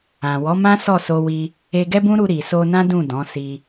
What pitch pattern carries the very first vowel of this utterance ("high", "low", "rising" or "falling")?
low